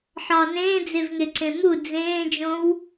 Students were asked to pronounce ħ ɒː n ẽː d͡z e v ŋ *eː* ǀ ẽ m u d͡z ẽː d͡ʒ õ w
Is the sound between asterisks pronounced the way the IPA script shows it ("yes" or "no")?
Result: no